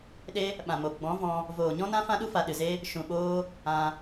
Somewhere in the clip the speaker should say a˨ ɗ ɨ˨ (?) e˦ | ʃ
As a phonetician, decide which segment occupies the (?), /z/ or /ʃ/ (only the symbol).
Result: z